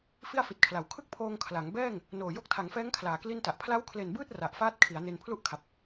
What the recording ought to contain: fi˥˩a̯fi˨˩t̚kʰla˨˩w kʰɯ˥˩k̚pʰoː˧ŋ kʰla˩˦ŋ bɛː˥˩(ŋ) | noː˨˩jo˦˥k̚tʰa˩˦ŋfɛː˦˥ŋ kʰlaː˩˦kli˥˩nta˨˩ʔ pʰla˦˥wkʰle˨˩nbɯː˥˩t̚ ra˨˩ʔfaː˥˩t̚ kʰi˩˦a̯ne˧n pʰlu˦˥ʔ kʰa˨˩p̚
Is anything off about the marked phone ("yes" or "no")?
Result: no